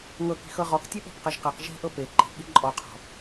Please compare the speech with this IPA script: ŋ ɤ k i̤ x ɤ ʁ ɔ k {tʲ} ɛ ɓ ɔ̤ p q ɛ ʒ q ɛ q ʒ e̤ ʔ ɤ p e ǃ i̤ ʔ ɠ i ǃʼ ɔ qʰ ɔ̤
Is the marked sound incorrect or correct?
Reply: correct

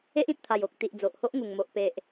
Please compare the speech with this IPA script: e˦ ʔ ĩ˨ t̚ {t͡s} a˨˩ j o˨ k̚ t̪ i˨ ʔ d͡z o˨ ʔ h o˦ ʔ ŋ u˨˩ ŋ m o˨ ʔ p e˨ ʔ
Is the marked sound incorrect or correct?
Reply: incorrect: t̪ʰ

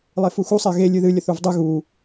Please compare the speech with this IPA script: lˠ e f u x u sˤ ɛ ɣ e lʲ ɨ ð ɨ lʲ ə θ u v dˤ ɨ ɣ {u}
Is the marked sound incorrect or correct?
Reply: correct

